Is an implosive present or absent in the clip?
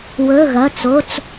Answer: absent